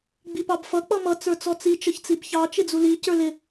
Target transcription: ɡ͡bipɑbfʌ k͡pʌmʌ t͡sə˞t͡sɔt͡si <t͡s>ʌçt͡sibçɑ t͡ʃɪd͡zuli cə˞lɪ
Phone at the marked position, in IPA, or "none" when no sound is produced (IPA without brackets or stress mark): t͡ʃ